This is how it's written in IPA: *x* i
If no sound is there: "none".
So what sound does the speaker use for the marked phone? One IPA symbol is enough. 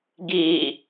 ɡ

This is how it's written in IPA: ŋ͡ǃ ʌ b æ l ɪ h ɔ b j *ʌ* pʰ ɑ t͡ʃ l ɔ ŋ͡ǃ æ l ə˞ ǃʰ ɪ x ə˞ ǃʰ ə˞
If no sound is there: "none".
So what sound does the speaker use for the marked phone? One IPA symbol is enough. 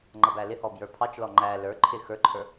ə˞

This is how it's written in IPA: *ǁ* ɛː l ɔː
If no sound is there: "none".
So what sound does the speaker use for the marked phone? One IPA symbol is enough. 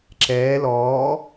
ǁ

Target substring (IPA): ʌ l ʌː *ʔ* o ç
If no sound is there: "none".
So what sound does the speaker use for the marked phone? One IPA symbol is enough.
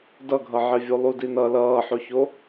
ħ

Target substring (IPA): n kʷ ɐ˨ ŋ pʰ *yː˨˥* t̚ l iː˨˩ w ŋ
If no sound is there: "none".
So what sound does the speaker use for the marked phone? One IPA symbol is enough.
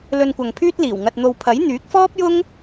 yː˥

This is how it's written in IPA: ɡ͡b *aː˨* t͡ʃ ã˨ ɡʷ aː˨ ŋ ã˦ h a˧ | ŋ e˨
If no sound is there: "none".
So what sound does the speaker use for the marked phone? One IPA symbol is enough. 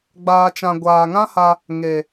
aː˨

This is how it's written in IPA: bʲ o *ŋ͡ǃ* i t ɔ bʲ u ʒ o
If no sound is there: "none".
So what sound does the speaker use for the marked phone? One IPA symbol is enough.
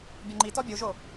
ŋ͡ǃ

